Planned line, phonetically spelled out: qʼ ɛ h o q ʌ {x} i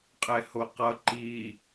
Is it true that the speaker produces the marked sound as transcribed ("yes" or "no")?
no